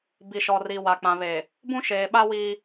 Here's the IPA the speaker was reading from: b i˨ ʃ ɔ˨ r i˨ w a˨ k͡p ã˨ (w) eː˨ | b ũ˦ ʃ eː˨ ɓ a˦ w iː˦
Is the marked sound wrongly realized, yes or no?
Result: yes